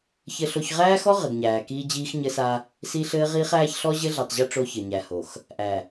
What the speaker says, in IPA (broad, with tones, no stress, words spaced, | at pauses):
çɘ˦ɬo˦ç ʁæː˦xɔ˦ ʁɘ˨ɡɲæː˨kiː˦ d͡ʑiː˦xɲɘ˦sa˦ | si˦ ɬɘː˦ʁiː˦χæː˦ç ɬɔ˦ʑɘ˦ɮi˨tˤʑɘ˦ ʈ͡ʂo˦çɘ˨ɲæ˨ho˨x | ʔæ˨